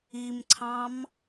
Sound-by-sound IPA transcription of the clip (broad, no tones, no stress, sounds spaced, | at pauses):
i m ǀʰ ɑ̃ m